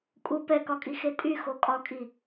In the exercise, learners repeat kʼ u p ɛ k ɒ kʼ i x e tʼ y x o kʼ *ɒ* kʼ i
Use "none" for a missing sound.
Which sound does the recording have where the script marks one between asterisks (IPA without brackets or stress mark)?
ɒ